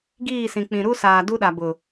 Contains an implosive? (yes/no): yes